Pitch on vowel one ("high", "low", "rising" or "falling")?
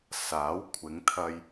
rising